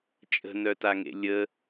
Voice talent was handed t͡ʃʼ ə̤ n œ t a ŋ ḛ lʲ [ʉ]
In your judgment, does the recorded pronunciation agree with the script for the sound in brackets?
no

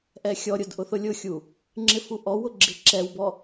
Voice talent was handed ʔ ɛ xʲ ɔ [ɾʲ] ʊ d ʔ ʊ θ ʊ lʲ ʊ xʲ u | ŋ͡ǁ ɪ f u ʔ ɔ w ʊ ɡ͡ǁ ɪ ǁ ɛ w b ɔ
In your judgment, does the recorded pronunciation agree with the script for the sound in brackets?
yes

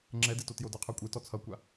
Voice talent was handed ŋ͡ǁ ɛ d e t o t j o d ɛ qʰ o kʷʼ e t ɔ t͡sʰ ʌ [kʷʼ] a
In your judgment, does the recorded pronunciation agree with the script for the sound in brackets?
no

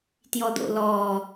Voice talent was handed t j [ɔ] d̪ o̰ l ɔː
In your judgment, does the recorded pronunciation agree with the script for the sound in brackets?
yes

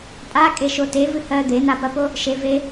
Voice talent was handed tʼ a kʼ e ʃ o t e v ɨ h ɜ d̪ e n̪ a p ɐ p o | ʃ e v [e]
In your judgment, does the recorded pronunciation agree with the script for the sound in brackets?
yes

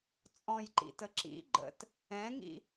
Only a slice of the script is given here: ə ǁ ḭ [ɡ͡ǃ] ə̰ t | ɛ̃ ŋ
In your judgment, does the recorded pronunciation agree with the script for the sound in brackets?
yes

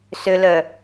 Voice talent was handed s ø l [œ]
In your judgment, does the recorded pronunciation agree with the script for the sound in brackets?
yes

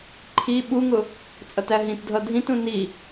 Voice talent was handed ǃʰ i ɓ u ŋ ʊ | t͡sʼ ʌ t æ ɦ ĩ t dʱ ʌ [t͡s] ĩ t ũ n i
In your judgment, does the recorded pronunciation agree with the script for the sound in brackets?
no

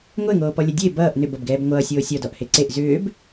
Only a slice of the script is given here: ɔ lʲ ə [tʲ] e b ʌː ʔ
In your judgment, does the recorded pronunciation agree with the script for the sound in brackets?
no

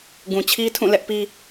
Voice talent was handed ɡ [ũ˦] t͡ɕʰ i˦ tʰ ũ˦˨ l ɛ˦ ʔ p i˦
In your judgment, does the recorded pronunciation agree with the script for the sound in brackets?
no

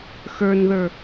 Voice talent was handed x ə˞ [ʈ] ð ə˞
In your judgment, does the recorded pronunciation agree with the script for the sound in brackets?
no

